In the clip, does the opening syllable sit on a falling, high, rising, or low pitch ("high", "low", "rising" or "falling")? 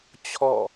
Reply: falling